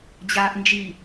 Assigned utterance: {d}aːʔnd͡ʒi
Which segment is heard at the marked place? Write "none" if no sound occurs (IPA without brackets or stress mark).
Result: d͡ʑ